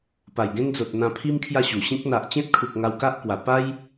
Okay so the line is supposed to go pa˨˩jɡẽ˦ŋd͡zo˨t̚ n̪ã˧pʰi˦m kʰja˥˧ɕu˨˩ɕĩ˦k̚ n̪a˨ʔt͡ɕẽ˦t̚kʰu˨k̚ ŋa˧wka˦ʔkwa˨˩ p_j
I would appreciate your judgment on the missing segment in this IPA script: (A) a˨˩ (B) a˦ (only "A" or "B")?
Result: B